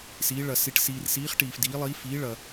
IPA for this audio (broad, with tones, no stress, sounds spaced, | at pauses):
s iː˧˥ ɭ ɐ˧ s i˧ ʈ s iː˧ r s iː˧˥ χ ʈ iː˧ f d iː˧˥ lˠ iː˧˥ f iː˧˥ ɭ ɐ˧